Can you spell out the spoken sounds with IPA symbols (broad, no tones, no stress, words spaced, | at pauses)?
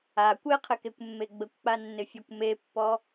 a kʷeqʰɪkekʷmːe ɡ͡bəkʷk͡panːɪfʲɔkʷ mepːɔ